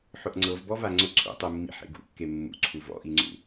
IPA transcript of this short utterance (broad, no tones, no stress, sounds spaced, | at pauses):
ħ ʊ ʔ ŋ͡ǀ ɤ v b ɔ v a ŋ͡ǀ ʊ ǀʰ ṵ tˤ u mː ḭ ħ ḛ ɡ ṵ kː e mː ṵ ǀʰ u v ɔ̰ ʔ i ŋ͡ǀ ṵ